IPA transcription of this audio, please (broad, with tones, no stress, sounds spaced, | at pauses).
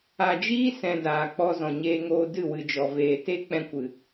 a˨ d͡ʒ iː˦ s ɛ̃˧ d aː˨ k͡p ɔ˧ z ɔ̃˨ ɲ eː˧ ŋ oː˧ d ɨ˦˨ w ɨ˨ d͡ʒ ɔ˨ v eː˨ t e˦ k͡p ɛ̃˦ kʷ ɨ˨